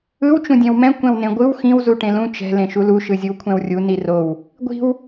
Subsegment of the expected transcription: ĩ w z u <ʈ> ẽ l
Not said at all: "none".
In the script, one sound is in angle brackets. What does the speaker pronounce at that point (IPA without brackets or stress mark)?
ʈ